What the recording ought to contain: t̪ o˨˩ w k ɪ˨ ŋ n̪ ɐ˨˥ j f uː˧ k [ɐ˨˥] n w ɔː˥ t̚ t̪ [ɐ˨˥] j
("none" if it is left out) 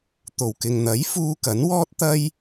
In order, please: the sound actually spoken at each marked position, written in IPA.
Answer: ɐ˨˥, ɐ˥

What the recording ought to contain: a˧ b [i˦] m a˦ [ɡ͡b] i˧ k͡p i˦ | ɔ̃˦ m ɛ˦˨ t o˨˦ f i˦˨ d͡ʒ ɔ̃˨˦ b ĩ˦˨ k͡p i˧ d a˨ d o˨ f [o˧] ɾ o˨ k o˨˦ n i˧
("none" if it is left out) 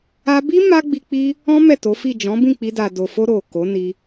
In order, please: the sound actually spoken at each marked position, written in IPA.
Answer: i˦, ɡ͡b, o˧

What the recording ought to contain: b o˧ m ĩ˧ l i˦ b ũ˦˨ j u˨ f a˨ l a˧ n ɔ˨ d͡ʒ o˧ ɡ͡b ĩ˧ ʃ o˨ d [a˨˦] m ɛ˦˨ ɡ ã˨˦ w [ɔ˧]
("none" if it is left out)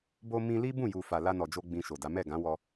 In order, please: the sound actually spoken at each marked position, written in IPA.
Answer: a˨˦, ɔ˧

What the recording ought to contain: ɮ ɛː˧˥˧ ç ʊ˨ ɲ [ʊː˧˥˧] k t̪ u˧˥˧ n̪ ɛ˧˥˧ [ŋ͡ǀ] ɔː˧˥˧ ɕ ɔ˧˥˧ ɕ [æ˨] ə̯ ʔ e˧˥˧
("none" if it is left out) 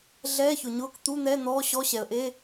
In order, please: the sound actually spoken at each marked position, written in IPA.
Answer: ʊː˧˥˧, n̪, ɛ˨

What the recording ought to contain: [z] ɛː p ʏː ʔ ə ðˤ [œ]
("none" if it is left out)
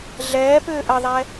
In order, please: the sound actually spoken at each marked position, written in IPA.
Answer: ɮ, ɛ

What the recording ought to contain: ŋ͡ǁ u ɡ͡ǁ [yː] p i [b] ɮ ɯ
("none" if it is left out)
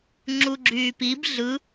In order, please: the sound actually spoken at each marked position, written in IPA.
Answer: yː, b

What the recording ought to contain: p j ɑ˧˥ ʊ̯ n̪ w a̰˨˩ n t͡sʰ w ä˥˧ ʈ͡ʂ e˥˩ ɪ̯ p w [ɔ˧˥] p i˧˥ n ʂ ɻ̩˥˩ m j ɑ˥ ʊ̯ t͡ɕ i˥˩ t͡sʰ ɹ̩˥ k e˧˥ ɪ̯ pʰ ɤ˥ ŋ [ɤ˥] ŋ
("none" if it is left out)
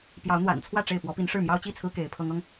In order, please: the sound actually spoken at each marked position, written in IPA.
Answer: ɔ˧˥, ɤ˥

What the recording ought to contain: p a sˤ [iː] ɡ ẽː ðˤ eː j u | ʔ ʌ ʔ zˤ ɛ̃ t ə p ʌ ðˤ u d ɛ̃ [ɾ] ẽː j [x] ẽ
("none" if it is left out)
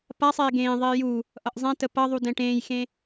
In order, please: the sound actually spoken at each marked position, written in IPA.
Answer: eː, ʈ, x

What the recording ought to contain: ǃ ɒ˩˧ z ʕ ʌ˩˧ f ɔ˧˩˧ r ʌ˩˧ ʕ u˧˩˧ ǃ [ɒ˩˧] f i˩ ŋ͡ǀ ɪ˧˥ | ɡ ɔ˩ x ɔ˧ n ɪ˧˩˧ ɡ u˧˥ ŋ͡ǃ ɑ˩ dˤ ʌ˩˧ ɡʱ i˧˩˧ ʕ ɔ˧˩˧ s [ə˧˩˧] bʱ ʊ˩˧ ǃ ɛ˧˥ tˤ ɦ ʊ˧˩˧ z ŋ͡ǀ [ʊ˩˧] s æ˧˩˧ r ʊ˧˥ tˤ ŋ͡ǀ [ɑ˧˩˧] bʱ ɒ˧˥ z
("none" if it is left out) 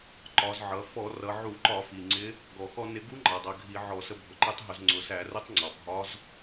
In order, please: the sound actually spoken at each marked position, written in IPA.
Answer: ɒ˧˩˧, ə˧, ʊ˩˧, ɑ˩

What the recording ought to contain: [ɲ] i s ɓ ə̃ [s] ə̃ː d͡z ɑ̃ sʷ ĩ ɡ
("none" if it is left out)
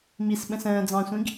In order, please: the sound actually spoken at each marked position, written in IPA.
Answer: m, s

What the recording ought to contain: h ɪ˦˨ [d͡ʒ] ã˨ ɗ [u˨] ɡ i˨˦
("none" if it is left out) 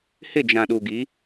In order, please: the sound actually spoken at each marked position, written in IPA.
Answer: d͡ʒ, u˨

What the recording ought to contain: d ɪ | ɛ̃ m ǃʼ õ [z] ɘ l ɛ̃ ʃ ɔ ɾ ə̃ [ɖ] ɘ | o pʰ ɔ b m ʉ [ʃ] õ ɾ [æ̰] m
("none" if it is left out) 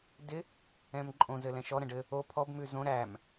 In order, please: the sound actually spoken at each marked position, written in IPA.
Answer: z, ɖ, z, æ

